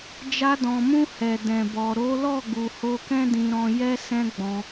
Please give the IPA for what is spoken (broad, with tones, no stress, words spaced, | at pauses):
d͡ʒa˧dɔ̃˨mũ˧ hɛ˨ dɛ̃˨bɔ˨ ɾo˨˦lɔ˦˨ ɡu˨ho˧kɛ̃˦ dĩ˧ɾɔ̃˧jɛ˦ sɛ̃˦ɡ͡bɔ̃˧